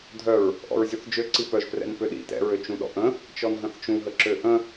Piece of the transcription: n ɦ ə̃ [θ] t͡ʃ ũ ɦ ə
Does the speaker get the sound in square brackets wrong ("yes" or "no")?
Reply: no